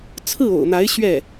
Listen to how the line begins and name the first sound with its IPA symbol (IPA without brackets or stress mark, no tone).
t͡sʰ